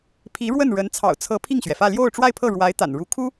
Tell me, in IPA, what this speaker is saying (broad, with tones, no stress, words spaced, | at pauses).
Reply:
pʰi˧˥ ɻwə˥˩n ɻə˧˥n t͡sʰɑ̰˨˩ʊ̯t͡sʰɤ˧˥ pʰi˥˩ŋɕɥɛ˩fä˥˧ ljo˥˧ʊ̯ʈ͡ʂwa˥˧ɪ̯pʰɤ˥˩ ɻwa˧˥ɪ̯t̪a̰˨˩n ɻu˧˥kʰu˥